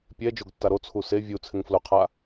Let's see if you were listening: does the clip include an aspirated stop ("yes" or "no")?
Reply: yes